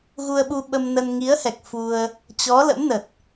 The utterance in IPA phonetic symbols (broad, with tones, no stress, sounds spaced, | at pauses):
ɣ u˧ ə̯ ɓ u˧ ɓ ə˧ m n ə˧ n ŋ i˨˦ ə̯ h ɛ˨˩ k̚ f u˧ ə̯ | t͡ɕ ɔ˨˦ l ə̰˧˥ m n ə˨˩ t̚